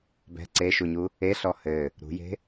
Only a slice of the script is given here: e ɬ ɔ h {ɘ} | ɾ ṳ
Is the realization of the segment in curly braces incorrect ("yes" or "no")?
no